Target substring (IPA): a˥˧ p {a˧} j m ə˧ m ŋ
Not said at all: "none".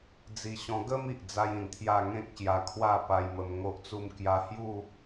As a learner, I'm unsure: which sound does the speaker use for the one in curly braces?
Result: a˧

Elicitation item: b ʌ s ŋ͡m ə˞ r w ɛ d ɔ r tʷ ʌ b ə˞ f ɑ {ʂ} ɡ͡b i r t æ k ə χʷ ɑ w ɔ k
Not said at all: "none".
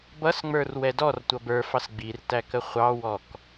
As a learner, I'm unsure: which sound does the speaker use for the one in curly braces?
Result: s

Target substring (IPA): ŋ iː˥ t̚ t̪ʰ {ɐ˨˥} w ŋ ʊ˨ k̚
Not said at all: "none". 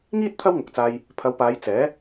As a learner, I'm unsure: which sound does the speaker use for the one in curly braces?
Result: ɐ˥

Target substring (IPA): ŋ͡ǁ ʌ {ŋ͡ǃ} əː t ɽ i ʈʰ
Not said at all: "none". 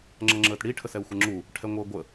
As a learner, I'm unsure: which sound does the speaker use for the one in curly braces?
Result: ŋ͡ǁ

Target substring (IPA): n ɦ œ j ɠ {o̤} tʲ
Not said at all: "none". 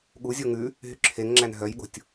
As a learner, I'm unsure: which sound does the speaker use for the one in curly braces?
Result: o̤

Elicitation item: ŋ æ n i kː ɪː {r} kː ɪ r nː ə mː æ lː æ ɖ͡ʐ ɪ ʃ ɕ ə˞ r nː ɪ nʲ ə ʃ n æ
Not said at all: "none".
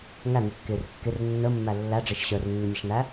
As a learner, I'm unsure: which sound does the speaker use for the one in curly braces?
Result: r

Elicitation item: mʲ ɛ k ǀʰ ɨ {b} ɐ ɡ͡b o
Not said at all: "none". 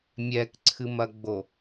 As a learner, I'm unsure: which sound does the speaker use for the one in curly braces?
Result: m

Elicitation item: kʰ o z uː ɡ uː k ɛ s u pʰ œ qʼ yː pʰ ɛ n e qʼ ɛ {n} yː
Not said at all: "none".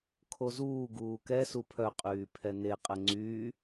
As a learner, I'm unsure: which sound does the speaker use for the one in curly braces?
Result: ŋ͡ǀ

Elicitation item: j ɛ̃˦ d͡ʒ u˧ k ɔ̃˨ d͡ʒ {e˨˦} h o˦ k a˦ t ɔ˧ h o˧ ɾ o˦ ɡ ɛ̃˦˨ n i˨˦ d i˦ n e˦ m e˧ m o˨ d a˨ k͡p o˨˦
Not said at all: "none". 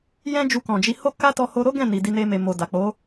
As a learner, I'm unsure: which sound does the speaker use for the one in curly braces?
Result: i˨˦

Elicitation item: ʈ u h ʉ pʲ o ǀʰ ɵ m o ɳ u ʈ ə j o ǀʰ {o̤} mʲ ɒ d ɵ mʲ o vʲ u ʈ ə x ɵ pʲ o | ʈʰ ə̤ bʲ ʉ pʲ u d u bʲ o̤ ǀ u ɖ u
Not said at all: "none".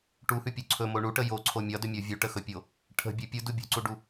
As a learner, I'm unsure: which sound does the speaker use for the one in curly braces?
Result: o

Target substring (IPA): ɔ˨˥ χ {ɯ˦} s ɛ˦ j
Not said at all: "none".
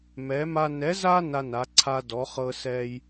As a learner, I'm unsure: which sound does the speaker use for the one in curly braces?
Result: ɤ˦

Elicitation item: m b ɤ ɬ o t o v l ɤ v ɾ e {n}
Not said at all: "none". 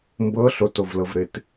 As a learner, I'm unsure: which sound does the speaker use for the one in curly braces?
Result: t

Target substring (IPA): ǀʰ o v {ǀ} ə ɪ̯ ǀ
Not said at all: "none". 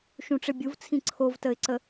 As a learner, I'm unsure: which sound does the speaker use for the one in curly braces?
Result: t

